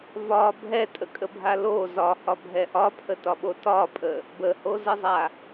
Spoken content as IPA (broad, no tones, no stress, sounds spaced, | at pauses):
v ɒ bʱ ɛ tʼ ə kʼ ə bʱ a l o z ɒ h ɒ bʱ ɛ ʔ ɒ pʰ ə t ɒ ɓ o t ɒ pʼ ə | b ə h o z ə zˤ a